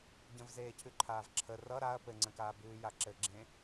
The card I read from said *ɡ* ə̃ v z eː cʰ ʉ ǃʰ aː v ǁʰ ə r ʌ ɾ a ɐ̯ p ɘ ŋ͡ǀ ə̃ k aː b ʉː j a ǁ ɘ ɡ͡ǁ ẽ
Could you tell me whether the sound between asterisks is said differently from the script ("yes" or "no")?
yes